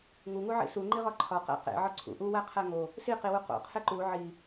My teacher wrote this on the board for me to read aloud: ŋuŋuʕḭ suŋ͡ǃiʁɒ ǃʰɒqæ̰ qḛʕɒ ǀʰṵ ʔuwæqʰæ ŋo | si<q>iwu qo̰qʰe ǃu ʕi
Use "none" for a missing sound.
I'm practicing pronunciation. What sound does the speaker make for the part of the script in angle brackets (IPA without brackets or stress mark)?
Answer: q